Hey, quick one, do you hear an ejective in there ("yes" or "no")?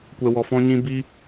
no